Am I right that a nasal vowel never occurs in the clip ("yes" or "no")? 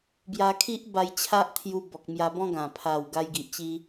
no